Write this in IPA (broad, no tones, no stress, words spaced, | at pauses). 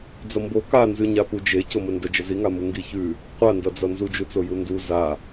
d͡zʌmbo kanzʉ ɲapud͡ʒe coməndə d͡ʒəziŋamu ŋɡiçʉ | qʷandʌd͡zʌ nzud͡ʒut͡soju ndu za